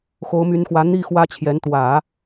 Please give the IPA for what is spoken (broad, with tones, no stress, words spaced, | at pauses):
xo˧˥ʊ̯my˧˥nxwä˧˥ n̪i˥˩ xwä˥t͡ɕʰjɛ˧˥n t̪wä˨˩˦